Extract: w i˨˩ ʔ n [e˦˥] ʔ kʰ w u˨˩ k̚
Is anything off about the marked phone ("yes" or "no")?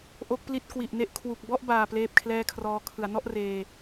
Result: no